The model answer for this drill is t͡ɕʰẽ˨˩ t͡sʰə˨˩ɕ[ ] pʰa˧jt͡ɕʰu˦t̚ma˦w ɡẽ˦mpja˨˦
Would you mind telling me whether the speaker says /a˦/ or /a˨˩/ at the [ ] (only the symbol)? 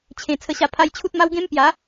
a˨˩